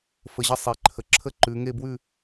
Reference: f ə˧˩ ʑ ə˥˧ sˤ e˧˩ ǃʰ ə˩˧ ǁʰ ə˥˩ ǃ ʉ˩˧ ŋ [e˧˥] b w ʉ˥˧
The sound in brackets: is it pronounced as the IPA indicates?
no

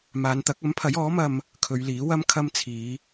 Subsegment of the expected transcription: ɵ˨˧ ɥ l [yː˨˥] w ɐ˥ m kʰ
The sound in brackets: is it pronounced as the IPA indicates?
no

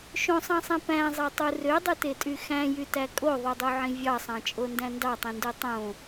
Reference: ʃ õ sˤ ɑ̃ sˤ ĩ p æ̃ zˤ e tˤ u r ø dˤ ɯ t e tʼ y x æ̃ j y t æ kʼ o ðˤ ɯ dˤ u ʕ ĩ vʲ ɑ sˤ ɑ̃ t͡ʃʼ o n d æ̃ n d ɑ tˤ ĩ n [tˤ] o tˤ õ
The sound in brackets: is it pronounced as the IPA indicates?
no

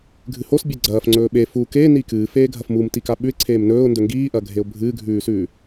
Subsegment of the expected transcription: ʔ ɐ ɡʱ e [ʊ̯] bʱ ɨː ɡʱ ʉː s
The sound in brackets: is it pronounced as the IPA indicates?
yes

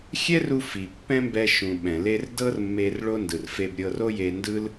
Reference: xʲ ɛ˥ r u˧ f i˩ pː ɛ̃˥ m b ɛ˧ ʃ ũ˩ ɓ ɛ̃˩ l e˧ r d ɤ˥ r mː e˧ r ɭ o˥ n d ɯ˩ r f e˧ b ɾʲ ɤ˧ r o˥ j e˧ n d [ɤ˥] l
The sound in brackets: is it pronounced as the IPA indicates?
no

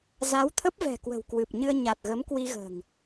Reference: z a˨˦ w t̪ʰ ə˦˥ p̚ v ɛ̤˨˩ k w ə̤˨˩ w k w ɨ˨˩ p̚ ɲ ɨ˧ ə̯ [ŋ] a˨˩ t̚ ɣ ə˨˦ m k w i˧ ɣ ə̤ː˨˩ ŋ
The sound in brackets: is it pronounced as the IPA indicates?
no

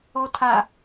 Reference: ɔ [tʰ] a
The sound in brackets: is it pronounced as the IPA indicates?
yes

